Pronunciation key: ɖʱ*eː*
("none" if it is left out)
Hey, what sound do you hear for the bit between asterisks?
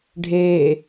eː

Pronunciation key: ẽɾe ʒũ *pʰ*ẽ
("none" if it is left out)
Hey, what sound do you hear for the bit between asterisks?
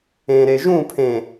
pʰ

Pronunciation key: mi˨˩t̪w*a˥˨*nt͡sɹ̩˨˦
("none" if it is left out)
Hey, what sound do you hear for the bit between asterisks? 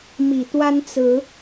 a˦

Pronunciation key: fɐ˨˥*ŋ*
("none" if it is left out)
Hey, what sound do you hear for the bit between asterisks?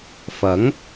ŋ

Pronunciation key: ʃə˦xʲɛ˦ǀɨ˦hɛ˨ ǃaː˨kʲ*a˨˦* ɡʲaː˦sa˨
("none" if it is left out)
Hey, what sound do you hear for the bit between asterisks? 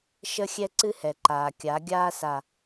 a˨˦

